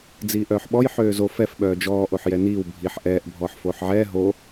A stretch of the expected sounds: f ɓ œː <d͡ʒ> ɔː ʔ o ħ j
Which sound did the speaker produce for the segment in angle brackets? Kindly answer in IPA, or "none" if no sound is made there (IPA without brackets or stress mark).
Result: d͡ʒ